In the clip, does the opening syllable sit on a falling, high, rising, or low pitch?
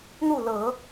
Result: falling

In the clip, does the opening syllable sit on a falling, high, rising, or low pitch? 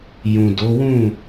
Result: low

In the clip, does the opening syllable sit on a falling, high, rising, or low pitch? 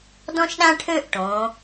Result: high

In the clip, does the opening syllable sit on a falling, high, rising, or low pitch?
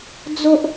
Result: high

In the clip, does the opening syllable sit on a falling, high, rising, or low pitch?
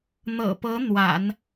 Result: low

